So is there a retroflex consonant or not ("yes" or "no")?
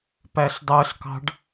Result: yes